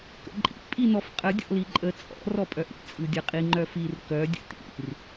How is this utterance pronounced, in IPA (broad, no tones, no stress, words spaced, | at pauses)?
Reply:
kə̰ǃʼḭ pʼinɔfqʼə dʲɔ̰liǃʼə t͡sʼɔ̰ rɔpʼœʔḭ t͡sʼɯdʲə qʼiŋ͡ǃœfir kœ dʲə̰tḭr